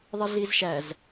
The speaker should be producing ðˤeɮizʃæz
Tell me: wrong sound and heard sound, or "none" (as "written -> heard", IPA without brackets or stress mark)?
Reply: none